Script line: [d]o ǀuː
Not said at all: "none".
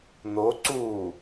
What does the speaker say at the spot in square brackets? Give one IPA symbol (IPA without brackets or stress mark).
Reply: n̪